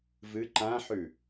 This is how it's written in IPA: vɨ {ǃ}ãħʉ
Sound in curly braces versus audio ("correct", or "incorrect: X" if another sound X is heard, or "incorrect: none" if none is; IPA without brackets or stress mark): correct